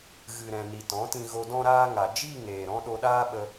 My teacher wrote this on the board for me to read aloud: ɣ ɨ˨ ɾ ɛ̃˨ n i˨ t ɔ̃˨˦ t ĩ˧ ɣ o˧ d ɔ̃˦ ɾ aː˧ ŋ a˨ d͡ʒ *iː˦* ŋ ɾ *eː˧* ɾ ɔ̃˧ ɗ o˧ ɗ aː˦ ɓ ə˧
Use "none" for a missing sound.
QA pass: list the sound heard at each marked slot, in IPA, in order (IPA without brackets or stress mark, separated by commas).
iː˦˨, eː˨